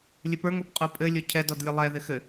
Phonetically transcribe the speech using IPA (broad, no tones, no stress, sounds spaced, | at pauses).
lʲ ɘ p ə˞ ŋ o p qʼ o pʼ ɘ lʲ o cʰ ɛ d ɔ d lʲ ɘ lˠ ɛ ð ɪ x ɘ